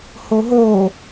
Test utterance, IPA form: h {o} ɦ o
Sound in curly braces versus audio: correct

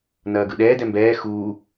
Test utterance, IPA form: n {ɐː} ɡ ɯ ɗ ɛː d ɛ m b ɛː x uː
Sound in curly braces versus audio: correct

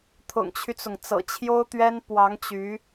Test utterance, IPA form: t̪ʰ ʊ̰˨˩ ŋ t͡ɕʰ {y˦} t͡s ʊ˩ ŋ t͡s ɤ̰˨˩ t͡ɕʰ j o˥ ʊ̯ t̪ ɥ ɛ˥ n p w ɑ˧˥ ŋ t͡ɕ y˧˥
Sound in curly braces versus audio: correct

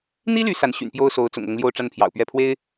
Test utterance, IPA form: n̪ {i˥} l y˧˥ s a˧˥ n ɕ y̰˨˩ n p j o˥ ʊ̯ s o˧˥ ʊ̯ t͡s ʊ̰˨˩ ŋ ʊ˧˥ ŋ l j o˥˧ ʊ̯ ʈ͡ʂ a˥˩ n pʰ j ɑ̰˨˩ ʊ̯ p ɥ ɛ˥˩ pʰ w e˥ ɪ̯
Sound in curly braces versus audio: correct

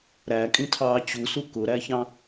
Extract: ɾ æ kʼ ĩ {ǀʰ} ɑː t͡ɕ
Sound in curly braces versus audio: incorrect: tʰ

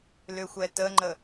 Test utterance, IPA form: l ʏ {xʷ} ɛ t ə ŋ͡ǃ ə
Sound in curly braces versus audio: correct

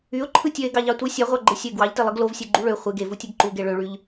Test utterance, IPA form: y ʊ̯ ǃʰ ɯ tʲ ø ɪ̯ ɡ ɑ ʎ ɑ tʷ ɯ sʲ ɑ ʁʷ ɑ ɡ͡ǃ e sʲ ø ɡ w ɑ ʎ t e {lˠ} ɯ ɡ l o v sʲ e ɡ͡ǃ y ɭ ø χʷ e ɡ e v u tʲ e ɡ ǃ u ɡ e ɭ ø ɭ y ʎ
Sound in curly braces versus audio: correct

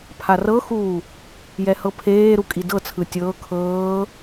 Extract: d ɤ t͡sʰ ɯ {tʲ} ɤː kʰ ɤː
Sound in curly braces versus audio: correct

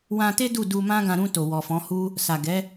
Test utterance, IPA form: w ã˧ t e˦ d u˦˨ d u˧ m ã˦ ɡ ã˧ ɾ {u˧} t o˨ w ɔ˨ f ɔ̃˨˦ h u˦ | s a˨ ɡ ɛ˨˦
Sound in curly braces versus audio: incorrect: ũ˧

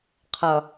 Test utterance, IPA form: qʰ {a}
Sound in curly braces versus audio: incorrect: ʌ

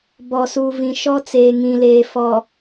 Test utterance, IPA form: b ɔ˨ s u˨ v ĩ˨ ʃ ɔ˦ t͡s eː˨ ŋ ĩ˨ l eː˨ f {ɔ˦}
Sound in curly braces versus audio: incorrect: ɔ˨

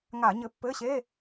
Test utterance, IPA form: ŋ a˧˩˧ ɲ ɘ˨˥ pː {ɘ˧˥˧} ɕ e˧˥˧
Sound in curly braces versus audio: correct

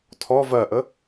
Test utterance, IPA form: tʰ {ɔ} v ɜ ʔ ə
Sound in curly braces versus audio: correct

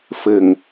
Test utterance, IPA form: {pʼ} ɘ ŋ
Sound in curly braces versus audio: incorrect: f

